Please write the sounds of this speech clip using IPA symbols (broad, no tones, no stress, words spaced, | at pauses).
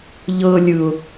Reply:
ʎɤ lʲɯʊ̯